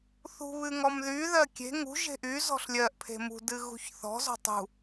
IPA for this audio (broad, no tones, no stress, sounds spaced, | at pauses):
θ ṳ β ɨ ŋ ɔ m ð y ð ɜ kʲ e̤ ŋ ṳ ʒ e̤ ʔ y z ɔ̤ ɬ lʲ ɜ ʔ pʰ e̤ m ṳ d ɨ ɣ ṳ ç θ ɔ̤ z ɔ̤ tˤ ṳ